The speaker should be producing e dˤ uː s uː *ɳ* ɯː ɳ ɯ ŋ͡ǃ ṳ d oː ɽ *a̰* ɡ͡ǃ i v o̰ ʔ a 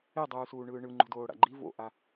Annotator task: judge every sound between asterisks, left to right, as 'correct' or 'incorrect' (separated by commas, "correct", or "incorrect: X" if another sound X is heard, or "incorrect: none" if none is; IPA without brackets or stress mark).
correct, correct